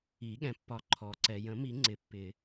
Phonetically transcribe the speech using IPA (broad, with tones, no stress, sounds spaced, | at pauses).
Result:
i˨˩˦ ɠ ɛ̃˩ pː ɒ˨˩˦ ǃʰ ɔ˩ ǀ ɛ˩ j ə̃˨˩˦ m i˨˩˦ ŋ͡ǀ ɪ˨˩˦ pː ɪ˨˩˦